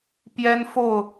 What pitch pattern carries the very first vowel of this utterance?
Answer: high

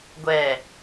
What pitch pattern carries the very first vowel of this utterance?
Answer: low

